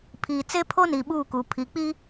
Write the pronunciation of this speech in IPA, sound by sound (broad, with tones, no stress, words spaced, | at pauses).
pʰiː˨t͡se˦pʰo˦niː˨ ɓuː˦˨ku˨ pʰi˨k͡pi˦